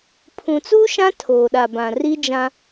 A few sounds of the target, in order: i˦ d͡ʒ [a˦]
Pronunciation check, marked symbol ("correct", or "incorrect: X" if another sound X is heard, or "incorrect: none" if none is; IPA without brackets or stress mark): incorrect: ã˦